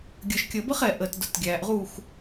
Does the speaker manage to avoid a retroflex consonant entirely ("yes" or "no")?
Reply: yes